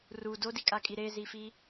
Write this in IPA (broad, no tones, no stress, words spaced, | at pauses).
ru dodikʼakʼi ɾezifi